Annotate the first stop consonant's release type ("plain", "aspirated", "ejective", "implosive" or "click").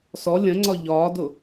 click